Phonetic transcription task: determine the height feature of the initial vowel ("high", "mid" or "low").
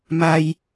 low